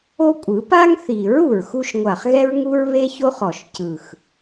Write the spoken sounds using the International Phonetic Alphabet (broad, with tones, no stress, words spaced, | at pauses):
o˦kʷʼɯ˨˩˦ pa˦ŋθi˨˩˦ɹ u˨˩ɹxu˦ʃ ŋʷa˨˩χɣɛ˦ɹŋu˦ɹ βe˦ço˦χɔ˨˩ʃ cɯ˨˩x